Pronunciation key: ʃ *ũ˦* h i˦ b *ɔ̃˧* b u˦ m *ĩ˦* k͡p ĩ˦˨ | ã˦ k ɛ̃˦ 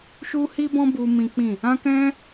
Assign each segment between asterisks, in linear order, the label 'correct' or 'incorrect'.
incorrect, incorrect, correct

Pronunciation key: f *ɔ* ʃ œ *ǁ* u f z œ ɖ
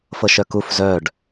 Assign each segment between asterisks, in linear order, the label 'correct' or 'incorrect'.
incorrect, incorrect

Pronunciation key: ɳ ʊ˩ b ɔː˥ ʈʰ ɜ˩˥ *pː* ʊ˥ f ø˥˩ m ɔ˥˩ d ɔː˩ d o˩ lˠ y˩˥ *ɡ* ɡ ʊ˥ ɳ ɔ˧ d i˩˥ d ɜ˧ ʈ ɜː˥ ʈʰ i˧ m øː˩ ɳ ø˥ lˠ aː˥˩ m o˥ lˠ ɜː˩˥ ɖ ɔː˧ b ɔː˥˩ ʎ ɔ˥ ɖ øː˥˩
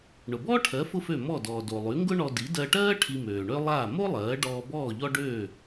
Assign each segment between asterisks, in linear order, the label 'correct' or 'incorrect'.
incorrect, incorrect

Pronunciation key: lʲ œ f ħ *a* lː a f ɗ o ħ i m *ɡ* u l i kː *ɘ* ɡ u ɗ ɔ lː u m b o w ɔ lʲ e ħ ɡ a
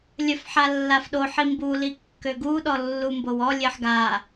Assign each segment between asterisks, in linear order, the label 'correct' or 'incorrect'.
correct, incorrect, incorrect

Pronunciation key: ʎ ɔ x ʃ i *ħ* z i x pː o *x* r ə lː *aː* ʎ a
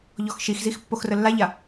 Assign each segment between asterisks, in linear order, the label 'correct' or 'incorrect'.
incorrect, correct, incorrect

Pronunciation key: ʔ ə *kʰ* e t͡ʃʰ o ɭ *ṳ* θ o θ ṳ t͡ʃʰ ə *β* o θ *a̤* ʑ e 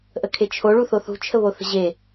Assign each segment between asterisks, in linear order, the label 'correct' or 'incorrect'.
correct, incorrect, correct, incorrect

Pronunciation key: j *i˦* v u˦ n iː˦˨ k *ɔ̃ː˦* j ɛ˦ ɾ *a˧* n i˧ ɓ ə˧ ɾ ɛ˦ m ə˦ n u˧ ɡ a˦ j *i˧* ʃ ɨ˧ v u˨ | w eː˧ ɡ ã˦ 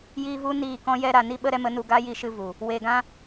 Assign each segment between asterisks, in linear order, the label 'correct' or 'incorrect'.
correct, incorrect, correct, correct

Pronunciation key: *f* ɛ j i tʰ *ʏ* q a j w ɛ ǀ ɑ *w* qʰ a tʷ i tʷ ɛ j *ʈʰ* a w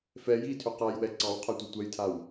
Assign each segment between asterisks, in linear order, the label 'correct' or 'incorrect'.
correct, correct, correct, incorrect

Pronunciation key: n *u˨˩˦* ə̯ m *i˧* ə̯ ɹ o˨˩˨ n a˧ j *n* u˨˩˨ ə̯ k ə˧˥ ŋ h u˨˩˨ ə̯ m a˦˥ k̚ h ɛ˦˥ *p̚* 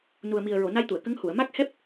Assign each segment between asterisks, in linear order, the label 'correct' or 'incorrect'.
incorrect, incorrect, incorrect, correct

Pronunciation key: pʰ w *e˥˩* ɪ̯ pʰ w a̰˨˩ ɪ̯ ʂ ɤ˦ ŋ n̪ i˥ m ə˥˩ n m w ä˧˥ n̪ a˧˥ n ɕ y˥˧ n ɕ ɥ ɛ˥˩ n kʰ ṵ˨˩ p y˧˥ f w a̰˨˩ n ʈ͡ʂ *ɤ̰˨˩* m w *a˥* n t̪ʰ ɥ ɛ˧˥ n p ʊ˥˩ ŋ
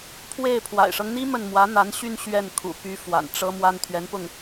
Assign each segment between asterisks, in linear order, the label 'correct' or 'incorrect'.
correct, incorrect, correct

